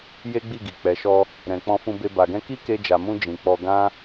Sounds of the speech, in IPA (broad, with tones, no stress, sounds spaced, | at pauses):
j e˦ ɡ͡b i˦˨ ɡ i˨ k͡p ɛ˨ ʃ ɔ˧ | ɾ ɛ̃˨ k͡p ɔ̃˧ f ũ˧ b e˧ b a˨ ɡ ɛ̃˧ k i˦ k e˧ d͡ʒ a˨ m ũ˧ d͡ʒ ĩ˨ k͡p ɔ˧ ɡ ã˦